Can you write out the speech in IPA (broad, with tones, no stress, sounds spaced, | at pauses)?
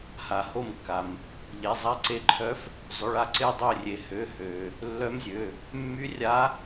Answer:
h a˩ h o˧˩ m kː a˩ m | ʎ e˩˧˩ zˤ a˧˥ ǀ e˧˥ ǃʰ œ˧˥ f | zˤ ʏ˩˧˩ ɭ a˧˩ ǀ e˧˩ dˤ ø˧˩ rʲ e˩ h ø˩˧˩ h ø˩ | lː œ˧˥ m zʲ ø˩˧˩ | mː y˧˥ rʲ a˧˥